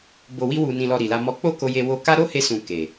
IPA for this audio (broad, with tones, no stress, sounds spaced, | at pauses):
b o˨ w i˧ w u˨ n ĩ˨ l ɔ˨ ɾ i˨ l a˧ m ɔ˧ k͡p o˦ k o˧ j e˧ w o˧ k a˦ ɾ o˦ h e˧ s ũ˨ k e˨